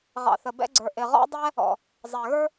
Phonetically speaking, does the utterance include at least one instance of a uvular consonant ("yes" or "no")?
yes